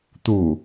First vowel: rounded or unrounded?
rounded